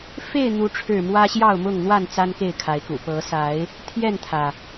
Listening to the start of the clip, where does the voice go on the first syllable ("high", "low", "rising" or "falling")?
falling